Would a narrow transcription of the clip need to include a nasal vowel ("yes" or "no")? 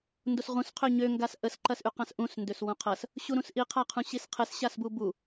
yes